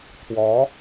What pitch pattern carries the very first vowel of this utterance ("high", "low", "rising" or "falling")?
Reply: rising